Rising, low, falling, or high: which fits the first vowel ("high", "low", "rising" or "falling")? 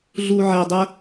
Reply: low